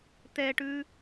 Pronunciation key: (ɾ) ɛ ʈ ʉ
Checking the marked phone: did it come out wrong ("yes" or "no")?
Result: yes